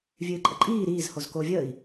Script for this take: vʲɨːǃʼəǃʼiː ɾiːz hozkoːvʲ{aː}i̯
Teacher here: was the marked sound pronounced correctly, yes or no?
no